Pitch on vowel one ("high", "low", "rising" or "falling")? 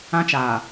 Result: high